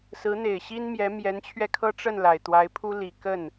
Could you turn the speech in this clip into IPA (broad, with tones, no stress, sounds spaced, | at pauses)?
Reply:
s ɹ̩˧˥ n̪ e˨˩ ɪ̯ ɕ i˥ n m j ɛ˧˥ m j ɛ˧˥ n t͡ɕʰ ɥ ɛ˧ kʰ ɤ˥ ʈ͡ʂ ə˥˩ n l a˨˩ ɪ̯ t̪ w a˧˥ ɪ̯ pʰ u˥ l i˨˩ k ə˥˩ n